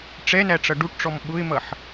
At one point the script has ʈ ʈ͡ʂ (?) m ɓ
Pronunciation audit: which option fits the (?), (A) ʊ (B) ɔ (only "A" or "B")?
B